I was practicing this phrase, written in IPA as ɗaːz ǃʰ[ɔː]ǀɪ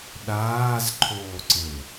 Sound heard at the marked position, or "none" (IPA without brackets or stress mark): oː